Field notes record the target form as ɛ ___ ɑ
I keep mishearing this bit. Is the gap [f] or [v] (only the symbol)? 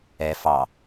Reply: f